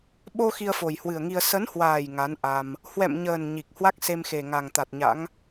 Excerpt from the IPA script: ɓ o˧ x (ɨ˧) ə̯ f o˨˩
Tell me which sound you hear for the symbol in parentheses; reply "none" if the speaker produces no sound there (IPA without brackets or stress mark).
i˧